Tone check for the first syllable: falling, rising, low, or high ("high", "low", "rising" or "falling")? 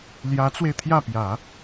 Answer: rising